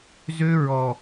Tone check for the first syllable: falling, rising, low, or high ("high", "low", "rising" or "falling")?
high